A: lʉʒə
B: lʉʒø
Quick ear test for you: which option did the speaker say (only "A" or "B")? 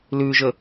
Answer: A